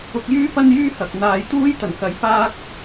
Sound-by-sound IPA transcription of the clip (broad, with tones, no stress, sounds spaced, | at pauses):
ʊ˧ k̚ j yː˥ p ɐ˥ n j yː˥ h ɐ˨ k̚ n̪ aː˨ j t̪ uː˥ j t̪ ɐ˨˩ n k ɐ˨˥ j p aː˥ k̚